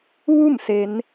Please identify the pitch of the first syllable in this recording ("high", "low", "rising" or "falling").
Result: falling